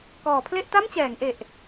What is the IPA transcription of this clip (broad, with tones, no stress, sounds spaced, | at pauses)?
k ɔː˩˦ pʰ l e˥˩ ʔ t a˥˩ m t͡ɕ ɛː˩˦ ŋ ʔ e˨˩ ʔ